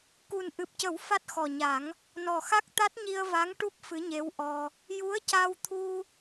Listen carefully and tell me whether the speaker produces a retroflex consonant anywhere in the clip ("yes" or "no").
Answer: yes